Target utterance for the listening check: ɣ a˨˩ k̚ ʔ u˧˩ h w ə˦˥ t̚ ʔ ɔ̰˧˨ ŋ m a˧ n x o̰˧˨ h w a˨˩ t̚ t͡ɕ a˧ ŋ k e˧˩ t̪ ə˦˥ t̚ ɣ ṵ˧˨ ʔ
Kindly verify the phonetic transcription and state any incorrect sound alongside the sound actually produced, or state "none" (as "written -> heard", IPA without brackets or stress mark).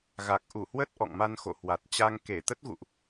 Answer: none